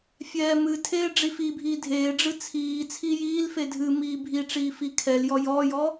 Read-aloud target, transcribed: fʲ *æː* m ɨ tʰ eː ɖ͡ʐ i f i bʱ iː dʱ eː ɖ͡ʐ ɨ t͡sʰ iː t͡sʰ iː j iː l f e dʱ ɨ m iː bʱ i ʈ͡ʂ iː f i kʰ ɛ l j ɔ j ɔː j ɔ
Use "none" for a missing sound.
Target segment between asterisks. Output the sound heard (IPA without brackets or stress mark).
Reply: ɛː